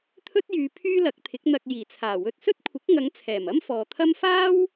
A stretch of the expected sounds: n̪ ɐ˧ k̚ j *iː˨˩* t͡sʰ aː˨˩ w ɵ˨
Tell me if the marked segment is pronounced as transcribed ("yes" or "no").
yes